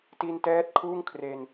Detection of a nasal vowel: absent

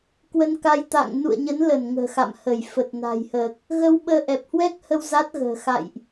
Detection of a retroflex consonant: absent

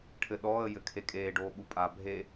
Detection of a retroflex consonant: present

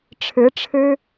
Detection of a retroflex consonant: present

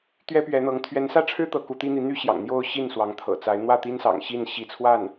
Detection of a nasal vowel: absent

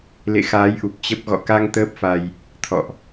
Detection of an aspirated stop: present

